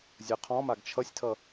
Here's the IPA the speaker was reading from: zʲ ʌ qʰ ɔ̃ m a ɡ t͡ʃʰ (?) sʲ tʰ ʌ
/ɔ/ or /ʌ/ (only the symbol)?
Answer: ʌ